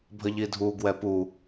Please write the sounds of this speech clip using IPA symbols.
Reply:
bʱ ə ʎ i dʱ u ɡ w ɛ p u

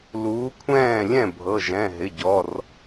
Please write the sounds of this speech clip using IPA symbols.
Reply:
l uː˨˥ kʷʰ ɛ̃ː˥˩ lʲ ɛ̃˥˩ bʱ ɤ˩˧˩ ʒ ɛ̃˩˧˩ ɦ ɪ˩˧˩ ɟ ɔ˩˧˩ r

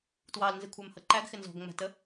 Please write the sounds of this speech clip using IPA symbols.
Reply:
t w ɑ l n z ɪ kʷʰ æ m h ʌ ǃ æ ɡ x ɪ n z ɔ̤ ɡ ŋ͡m æ̤ t ə

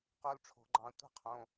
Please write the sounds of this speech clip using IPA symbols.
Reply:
q o˦˥ l ʈ͡ʂʰ o̤˨˩˦ ɡ͡ǃ ɑ̃˧ tʷ ɛ̤˦˥ qʰ õ˩˧˩

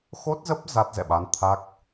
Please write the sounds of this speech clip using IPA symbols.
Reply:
x o˦˥ t̚ z ə˦˥ p̚ z a˦˥ t̚ z ɛ̰˧˨ ɓ a˨˦ n t̪ʰ a˦˥ k̚

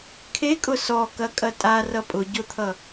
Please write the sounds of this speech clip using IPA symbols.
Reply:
kʰ e kʼ ʊ s ɔ k ɐ kʼ ɐ tʼ a r ʌ pʼ ʊ ɟ ʊ t̪ʰ ʌ

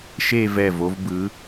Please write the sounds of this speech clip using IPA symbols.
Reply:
ʃ e˥˧ v ɛ˧˩ v o˧ v b ɯ˩˧

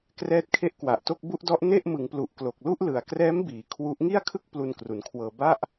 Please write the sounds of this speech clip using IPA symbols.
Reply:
k r ɛː˦˥ t̚ kʰ e˦˥ ʔ k w a˨˩ ʔ t o˥˩ k̚ b u˦˥ ʔ d ɔ˦˥ ʔ n e˥˩ ʔ m ɯ˩˦ ŋ p l u˨˩ ʔ k l o˨˩ k̚ l u˥˩ ʔ l ɯ˩˦ a̯ k r ɛː˦˥ m b iː˩˦ kʰ w u˦˥ ʔ ŋ i˥˩ a̯ kʰ ɯ˥˩ k̚ p l u˧ n k r u˩˦ n kʰ w ɤː˧ b a˥˩ ʔ

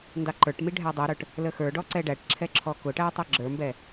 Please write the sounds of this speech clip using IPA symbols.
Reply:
n d ɑ ǃ ə˞ ʈ m i ɖʱ æ dˤ ɛ ɾ ə˞ ʈ | l ə x ə˞ ɖ ɔ ǀ ɛ ɖ æ ʈ ǁʰ ɛ ǁʰ ɔ k ʊ ʈ æ tˤ ɛ ɡ͡ǁ ə˞ m b ɛ

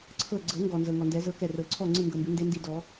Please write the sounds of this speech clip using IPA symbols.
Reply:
ǀʰ ɤ˧˩ ɡ͡ǀ ɤ˨˩˦ ŋ ɡ ɔ˩ n z ɤ˩ ŋ ɔ˩ n d ɛ˨˩˦ z ɤ˨˦ k ɛ˧˩ r ɤ˨˩˦ ǀʰ ɔ˥˨ ŋ͡ǀ ɯ˥˨ ŋ ɡ ɤ˧˩ m b ɯ˨˩˦ n d e˨˦ n d i˧˩ d ɔ˨˩˦

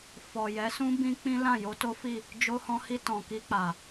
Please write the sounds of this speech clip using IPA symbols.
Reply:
f ɔ˨ j ɛ˨˦ s ũ˦ b ĩ˦ k͡p ĩ˦ l ã˦˨ j o˧ t o˦ f i˦˨ | d͡ʒ o˧ h ɔ̃˧ h i˧ t ɔ̃˨ k i˧ k͡p a˨

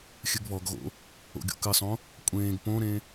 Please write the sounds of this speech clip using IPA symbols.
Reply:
xʲ ɨ ɡ β ɔ ɡ ɣ o̰ | o̰ ɡʲ o̰ k ɨ sˤ õ | kʷʼ ẽː ɡ p õ ɾ ẽ

